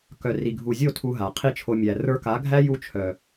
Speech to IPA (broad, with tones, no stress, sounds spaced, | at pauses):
k œ˨ r i˨ ɡʱ u˨ zʲ o˦˨ tʰ u˦ ɦ a˨ qʰ i˦ t͡ʃʰ o˧ mʲ æ˨ r ə˞˧ k a˨˦ ɡʱ æ˦ j u˦ t͡ʃʰ œ˨